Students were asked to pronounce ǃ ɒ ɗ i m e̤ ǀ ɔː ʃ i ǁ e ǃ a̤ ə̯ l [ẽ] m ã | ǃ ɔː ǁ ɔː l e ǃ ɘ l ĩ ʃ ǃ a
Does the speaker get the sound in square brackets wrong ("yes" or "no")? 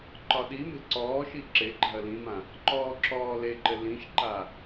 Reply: yes